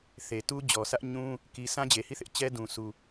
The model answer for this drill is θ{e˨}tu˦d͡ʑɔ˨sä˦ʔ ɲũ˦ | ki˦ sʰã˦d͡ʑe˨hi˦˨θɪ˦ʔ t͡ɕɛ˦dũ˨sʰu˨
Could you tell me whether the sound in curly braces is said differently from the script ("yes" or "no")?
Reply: no